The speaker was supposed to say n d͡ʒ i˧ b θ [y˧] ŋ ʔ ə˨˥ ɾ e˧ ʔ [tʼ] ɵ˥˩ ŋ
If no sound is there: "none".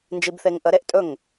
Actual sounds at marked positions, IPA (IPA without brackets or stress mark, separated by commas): e˧, tʼ